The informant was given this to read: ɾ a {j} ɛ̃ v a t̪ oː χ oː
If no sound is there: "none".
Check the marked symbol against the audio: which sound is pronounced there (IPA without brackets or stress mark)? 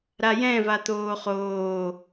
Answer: j